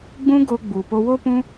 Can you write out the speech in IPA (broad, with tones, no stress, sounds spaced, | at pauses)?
ɡ͡b ũ˦ ɡ o˧ ɡ͡b u˨ p o˧ w o˦ p ũ˦